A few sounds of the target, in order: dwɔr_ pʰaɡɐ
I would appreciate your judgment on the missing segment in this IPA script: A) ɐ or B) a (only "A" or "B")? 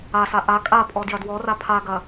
B